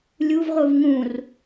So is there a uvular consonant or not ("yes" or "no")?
yes